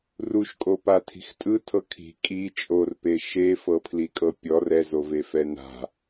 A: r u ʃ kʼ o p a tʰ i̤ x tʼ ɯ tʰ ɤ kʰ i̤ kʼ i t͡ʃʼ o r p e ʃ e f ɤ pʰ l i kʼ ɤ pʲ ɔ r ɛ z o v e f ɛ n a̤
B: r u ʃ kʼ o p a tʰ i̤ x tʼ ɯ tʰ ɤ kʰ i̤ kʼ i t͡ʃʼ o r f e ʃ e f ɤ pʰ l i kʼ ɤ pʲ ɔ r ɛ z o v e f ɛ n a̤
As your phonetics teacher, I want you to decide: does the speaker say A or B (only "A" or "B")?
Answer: A